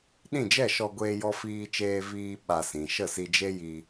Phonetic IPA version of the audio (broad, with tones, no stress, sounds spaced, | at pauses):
ɗ ĩ˦˨ d͡ʒ ɛ˦˨ ʃ ɔ˧ ɡʷ eː˦ j ɔ˦ f iː˦ t͡ʃ eː˦ v iː˦ ɓ a˧ s ĩ˨ ʃ ə˦˨ s i˧ d͡ʒ e˦ j i˧